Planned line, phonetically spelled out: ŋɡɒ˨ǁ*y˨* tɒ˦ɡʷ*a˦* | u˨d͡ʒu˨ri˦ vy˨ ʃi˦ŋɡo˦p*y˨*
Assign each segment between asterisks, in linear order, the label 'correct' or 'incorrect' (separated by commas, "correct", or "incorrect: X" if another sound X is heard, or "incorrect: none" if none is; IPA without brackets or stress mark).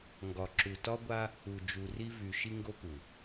incorrect: u˨, correct, incorrect: u˨